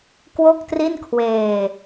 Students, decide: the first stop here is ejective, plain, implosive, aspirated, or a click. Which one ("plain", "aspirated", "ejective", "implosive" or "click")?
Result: plain